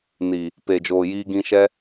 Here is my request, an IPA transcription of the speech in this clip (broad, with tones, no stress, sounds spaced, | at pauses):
n i˨ | p e˨ d͡ʒ oː˨ j iː˧ ɡ ĩ˧ ʃ ɛ˦